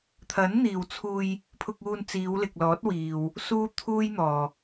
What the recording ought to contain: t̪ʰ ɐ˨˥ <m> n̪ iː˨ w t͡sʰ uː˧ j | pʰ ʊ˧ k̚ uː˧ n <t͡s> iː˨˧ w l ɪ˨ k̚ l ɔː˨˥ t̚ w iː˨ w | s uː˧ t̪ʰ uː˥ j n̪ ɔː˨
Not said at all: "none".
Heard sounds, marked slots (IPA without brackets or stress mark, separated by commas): n, t͡s